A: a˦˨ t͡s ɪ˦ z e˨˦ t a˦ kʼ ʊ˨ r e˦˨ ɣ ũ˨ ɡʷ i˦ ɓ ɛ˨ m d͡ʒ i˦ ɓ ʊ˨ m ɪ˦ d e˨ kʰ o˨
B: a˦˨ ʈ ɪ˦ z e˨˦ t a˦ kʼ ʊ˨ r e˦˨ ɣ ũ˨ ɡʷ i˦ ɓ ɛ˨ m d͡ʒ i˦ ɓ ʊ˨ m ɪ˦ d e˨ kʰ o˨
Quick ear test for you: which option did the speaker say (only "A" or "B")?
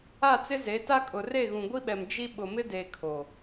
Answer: A